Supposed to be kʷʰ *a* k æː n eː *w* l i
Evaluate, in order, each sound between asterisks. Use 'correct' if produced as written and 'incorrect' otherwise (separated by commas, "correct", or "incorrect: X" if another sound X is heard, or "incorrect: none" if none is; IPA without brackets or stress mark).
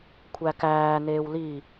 incorrect: æ, correct